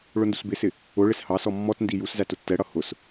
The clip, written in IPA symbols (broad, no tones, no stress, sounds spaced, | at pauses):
ɭ ʊ n d u s b ɪ s ɪ | ʊ ɭ ɪ s h ɑ s ɔ mː ɔ t n d i j u s z æ t ʊ tː ɛ ɽ ʌ h ʊ s